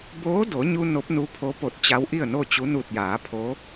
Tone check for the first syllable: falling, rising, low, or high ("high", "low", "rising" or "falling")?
rising